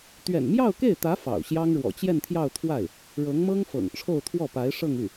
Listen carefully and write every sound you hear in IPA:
t̪ ɥ ɛ̰˨˩ n m j ɑ˥˧ ʊ̯ k e˥˩ ɪ̯ t̪ ä˧˥ f ɑ̰˨˩ ʊ̯ ɕ j ɑ˥ ŋ ɻ w ɔ̰˨˩ t͡ɕ j ɛ˥˧ n t̪ʰ j ɑ˥˧ ʊ̯ t̪ʰ w a˥˩ ɪ̯ | ɻ ɤ˧˥ ŋ m ɤ˥ ŋ f ɤ̰˨˩ ŋ ʈ͡ʂʰ o˥˧ ʊ̯ t̪ʰ w ɔ˥˩ p a˧˥ ɪ̯ ʂ ɤ˥˧ ŋ y˥˩

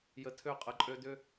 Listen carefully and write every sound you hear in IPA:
j ə˨ tʰ ø˦˨ qʼ ə˨ ǃʼ ø˦ d ʏ˦

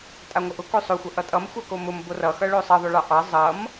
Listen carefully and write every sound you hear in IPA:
tʼ a ŋʷ ʌ ʔ ʊ k o sˤ o xʷ ʌ ʔ ʌ tʼ ʌ m xʷ a k o m ʊ m b o r ʌ x ʌ ɭ o sˤ ʌ ðˤ ʊ ɭ ɑ ʔ ɑ zˤ ʌ m

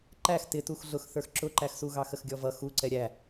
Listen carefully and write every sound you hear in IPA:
ǃ æ x t ɪ t u x ɮ ʊ x θ ə˞ x ǁ ʊ ǃ æ x s u ɣ ɑ x ə x ɡʲ ɔ v ʌ x u ǀ ɛ ɾʲ æ

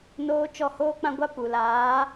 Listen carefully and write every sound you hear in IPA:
n oː˦ t͡ʃ ɔ˦˨ h oː˦ k͡p ã˦ ɡʷ a˦ p u˨ l aː˨˦

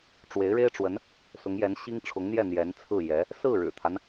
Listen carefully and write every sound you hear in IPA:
ʈ͡ʂ w e˧˥ ɪ̯ ɻ e˥ ɪ̯ ʈ͡ʂ w ə˧˥ n | s ʊ˧˥ ŋ j ɛ˧˥ n ɕ i˥ ŋ ʈ͡ʂʰ ʊ˧˥ ŋ n̪ j ɛ˥˩ n̪ j ɛ˧˥ n t͡sʰ ɹ̩˥˩ j ɛ˧˥ | s ɹ̩˥˩ ɻ ɻ̩˨˩ t̪ʰ a˦ n

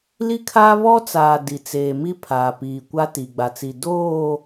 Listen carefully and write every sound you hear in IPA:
l i˦ kʰ aː˦ β ɔ˦ t͡s aː˨ d i˨ t͡s eː˨ m i˦ pʰ aː˨ p iː˨ kʷ a˦ t i˨ ɡ͡b a˨ t͡s i˨ d oː˦˨

